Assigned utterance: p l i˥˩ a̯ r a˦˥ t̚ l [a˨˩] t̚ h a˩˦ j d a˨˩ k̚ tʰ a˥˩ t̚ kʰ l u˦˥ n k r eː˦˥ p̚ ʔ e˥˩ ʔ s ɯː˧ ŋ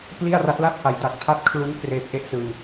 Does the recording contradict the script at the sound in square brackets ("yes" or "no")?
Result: yes